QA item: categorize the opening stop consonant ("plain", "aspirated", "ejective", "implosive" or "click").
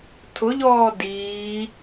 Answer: aspirated